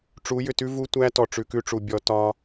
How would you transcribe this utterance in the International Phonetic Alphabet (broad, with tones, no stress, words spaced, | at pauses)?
ʈ͡ʂu˨˦jʏ˨tʉ˦ vu˦tʷæ˦ tɔ˨ʈ͡ʂʉ˨kʉ˦ʈ͡ʂu˨ bʲɔ˦ tɒ˦